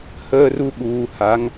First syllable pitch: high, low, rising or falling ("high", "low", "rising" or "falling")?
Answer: high